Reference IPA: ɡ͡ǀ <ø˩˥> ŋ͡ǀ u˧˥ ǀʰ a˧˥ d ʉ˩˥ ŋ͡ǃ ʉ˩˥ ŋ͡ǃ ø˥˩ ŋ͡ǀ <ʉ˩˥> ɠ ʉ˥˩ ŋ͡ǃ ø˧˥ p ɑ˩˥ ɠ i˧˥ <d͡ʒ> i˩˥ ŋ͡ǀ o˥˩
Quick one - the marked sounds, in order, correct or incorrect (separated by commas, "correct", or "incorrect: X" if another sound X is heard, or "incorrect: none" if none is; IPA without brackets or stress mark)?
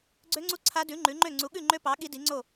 incorrect: ø˧˥, incorrect: u˩˥, incorrect: d